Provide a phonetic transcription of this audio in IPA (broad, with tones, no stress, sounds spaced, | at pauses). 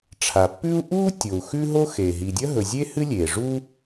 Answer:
ʈ͡ʂʰ a˩ pː ʉ˥ u̯ ʔ uː˥ tʲ o˩ u̯ x ʉ˥ ɦ o˥ x e˩ ɦ i˩ dʲ ɐ˥ ɦ ɵ˩ zʲ e˥ h ɨ˥ lʲ eː˩ ʐ u˥